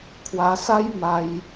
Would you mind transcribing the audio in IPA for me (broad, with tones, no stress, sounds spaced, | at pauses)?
kʰ w a˧ s a˦ j m a˦ j